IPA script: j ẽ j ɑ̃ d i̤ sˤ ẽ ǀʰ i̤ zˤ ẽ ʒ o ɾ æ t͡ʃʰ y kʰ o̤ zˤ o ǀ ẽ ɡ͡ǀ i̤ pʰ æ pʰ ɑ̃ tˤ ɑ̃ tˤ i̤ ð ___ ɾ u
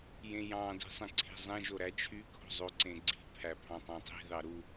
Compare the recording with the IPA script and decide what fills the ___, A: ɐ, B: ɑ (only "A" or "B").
B